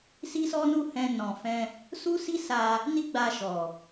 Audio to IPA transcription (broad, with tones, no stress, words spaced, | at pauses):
si˦sɔ˦nu˦˨hɛ̃˧ nɔ̃˨fɛ̃˧ | su˦si˦ sa˧ | ni˦ɡ͡ba˧ʃɔ˨